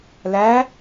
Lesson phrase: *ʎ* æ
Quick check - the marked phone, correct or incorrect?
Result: incorrect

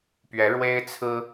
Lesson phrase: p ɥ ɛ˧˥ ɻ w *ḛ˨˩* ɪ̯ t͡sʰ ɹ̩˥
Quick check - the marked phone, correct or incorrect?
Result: incorrect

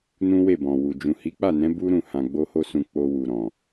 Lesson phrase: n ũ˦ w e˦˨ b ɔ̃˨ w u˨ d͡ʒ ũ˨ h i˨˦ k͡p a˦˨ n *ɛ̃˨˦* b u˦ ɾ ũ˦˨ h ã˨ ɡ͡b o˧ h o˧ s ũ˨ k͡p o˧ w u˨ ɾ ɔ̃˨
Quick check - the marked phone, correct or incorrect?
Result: correct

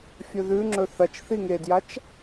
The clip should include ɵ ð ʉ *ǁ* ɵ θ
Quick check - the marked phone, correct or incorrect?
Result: incorrect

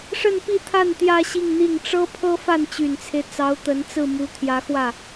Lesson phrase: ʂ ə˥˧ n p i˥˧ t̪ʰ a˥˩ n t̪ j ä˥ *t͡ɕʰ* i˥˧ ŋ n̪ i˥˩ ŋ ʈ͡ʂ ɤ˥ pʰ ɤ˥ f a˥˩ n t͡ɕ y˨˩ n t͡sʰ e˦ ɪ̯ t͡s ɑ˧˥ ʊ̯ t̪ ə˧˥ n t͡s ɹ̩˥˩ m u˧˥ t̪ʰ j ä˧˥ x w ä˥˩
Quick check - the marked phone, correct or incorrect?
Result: incorrect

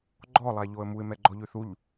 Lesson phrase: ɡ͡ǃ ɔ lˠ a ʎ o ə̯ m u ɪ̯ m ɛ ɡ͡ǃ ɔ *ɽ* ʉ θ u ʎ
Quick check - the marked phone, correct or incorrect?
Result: incorrect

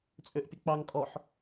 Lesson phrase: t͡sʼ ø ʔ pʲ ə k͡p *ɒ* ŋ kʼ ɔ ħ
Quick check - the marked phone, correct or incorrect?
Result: incorrect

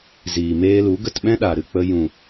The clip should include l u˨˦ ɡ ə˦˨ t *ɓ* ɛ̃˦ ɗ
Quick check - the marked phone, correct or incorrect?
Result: correct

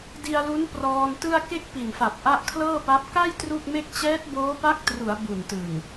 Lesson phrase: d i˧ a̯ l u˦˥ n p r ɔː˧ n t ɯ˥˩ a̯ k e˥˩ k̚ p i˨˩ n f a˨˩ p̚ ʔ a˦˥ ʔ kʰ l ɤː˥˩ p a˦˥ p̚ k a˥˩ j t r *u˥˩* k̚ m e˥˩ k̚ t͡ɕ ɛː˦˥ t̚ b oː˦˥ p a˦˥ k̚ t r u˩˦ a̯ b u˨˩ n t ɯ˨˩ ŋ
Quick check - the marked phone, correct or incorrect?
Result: correct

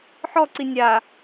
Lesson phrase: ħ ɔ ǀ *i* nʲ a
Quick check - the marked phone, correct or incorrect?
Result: correct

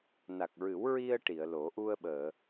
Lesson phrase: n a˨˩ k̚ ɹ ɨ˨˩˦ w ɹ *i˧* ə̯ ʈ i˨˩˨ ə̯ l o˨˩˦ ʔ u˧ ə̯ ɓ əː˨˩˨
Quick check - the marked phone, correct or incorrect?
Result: correct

